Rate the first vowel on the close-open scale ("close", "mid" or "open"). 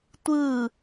close